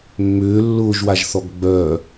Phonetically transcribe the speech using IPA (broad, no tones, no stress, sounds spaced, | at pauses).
mː ʏː lː ʊː ʒ w a ʒ θ ɔ ɡ ɡ͡b œ